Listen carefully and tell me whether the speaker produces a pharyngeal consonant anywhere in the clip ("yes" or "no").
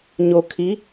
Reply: no